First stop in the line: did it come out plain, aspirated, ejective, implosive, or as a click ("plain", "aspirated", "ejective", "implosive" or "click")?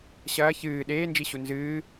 implosive